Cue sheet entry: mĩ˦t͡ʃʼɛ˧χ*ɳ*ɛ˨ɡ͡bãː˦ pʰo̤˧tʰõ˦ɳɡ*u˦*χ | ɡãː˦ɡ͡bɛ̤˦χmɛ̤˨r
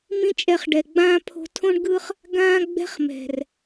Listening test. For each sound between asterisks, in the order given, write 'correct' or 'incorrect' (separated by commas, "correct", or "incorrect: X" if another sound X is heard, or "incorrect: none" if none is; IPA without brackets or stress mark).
incorrect: ɖ, incorrect: ɯ˦